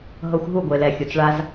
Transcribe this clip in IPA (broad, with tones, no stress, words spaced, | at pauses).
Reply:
ɦɤ˧xʷɦu˦˨ɡʷe˨lɛ˨ xʲo˨t͡sɭa˧z